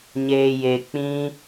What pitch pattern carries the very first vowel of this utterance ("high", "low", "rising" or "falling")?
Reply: low